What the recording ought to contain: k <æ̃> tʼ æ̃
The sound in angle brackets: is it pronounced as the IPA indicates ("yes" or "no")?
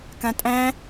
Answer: no